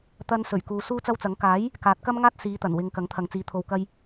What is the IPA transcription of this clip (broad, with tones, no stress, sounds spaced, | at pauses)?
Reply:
t̪ ɐ˧ n s ɵ˨˩ ɥ k uː˨ s uː˥ t͡s ɐ˥ w t͡s ɐ˨˥ ŋ k aː˨˥ j | k aː˨˥ t̚ k ɐ˥ m ŋ aː˥ t̚ s iː˨˧ t̪ ɐ˨˩ n w ɪ˧ ŋ k ɐ˨˥ ŋ t̪ʰ ɐ˨ ŋ t͡s iː˨˧ t̪ʰ o˧ w k ɐ˧ j